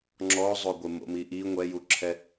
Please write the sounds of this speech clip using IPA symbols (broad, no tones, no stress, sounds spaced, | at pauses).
ŋ͡ǁ ɔ zˤ o ɡʷ ɪ m o̰ m i ʔ i ŋʷ ɛ j u ǁʰ ɛ